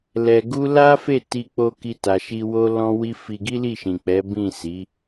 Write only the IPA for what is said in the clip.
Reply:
l ɛ˧ ɡ u˦ l a˦ f e˦˨ t i˧ k͡p o˧ k i˧ t a˨ ʃ i˧ w o˦ l ɔ̃˦ w i˦ f i˧ ɡ i˦ l i˦˨ ʃ ĩ˨ k͡p ɛ˨˦ b ĩ˦˨ s i˨˦

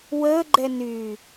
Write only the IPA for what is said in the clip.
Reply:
w əː ɡ͡ǃ ɛ n yː

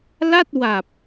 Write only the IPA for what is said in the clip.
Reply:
l a˥˩ t̚ w a˨˩ p̚

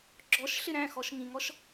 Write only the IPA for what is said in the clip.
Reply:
ɡ͡ǁ ɔ ʃ ɬ ɪ ɾ æ̃ x ɔ ʃ ŋ ĩ ŋ ɔ ʃ

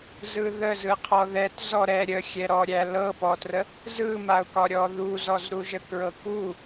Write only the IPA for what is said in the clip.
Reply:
z ɯ ð ə z ɯ qʰ ɔ ð ɛ t z ɔ ɾ ɛ ɾʲ ə xʲ ɛ ɾ ɔ ɾʲ æ l ɤ p ɔ t r ə | z ɯ m a ʊ̯ k ɒ ɾʲ ɔ ð u z ɔ z ɾ u ʒ ə k ɹ ɤ k u

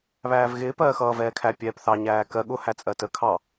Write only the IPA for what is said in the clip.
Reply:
β æː v ɣ ɪː p ɜː x ʌː v ɛː kʰ æ pʲ ɛː p θ ɑ ɲ æː k ɜ ɠ ʊ h æ t͡sʼ ɜ t ə kʰ ɑ

